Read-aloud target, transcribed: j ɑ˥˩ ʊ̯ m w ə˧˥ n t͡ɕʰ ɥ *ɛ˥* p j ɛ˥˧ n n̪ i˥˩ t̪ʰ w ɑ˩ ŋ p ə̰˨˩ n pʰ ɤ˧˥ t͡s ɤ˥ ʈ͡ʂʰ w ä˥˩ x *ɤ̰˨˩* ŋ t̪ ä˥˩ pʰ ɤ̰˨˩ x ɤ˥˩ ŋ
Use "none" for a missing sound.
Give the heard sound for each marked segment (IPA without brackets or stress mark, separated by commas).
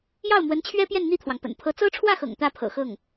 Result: ɛ˥, ɤ̰˨˩